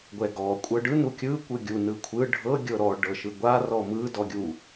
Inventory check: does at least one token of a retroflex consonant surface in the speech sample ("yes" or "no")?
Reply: yes